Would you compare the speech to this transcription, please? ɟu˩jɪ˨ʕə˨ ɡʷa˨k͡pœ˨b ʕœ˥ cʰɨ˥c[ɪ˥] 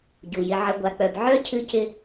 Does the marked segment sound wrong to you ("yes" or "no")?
no